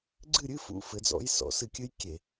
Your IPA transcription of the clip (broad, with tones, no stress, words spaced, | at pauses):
ɡ͡ǀɨ˥˨ɾʲɨ˧˥˧ fṵ˦˥fɘ˨˦d͡zɔ̰˦˥j sɔ̰˨˦sɨ˧˩kʲɨ˦˥j kʲe˧˩˧